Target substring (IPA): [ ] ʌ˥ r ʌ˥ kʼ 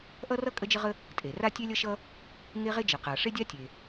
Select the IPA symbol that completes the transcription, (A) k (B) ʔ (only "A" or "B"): B